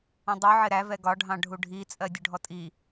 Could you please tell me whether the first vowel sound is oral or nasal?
nasal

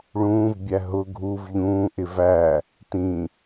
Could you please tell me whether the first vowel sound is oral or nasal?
nasal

